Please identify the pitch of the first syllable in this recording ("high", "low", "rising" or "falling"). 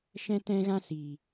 high